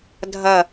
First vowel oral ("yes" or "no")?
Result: yes